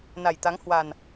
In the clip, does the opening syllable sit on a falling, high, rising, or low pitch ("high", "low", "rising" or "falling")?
low